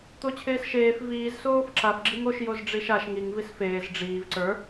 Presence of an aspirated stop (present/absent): present